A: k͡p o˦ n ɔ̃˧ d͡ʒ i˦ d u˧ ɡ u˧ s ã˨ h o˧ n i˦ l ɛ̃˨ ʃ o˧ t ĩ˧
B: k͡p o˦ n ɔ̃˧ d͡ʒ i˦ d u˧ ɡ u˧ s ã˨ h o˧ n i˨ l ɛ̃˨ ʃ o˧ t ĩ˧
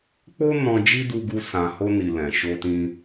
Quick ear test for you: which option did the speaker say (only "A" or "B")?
B